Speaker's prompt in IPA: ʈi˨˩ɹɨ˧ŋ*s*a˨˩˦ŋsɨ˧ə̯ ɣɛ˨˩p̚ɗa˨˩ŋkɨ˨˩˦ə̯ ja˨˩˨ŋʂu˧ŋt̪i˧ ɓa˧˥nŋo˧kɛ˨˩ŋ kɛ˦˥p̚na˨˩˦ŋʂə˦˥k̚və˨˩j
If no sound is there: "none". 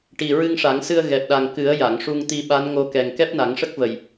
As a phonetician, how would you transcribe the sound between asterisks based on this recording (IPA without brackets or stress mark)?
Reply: ʂ